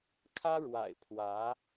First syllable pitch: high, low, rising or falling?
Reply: high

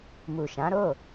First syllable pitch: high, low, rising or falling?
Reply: low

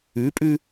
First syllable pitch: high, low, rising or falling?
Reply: rising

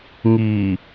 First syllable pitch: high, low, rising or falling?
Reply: low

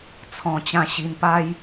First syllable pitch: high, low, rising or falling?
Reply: low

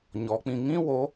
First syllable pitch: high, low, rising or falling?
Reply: rising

